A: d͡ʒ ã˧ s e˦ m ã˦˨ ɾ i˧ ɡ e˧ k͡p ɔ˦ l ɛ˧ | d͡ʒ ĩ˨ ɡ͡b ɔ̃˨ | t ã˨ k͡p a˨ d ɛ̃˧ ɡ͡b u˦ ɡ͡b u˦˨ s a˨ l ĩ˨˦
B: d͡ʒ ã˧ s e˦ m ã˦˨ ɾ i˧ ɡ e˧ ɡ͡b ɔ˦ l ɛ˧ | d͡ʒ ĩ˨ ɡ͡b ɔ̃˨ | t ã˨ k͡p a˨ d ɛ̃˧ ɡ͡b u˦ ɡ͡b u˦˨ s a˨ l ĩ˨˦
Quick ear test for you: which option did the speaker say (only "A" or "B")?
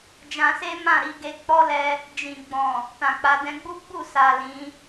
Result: A